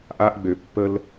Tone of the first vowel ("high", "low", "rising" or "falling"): high